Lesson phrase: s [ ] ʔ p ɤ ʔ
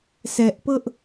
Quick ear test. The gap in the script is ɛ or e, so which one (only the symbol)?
ɛ